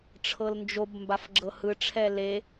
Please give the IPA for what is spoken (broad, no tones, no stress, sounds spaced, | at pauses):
ʈ͡ʂʰ ɤ l n d͡ʒ o b m b a f ɡ͡ǁ ɤ h ɯ ʈ͡ʂʰ ɛ l e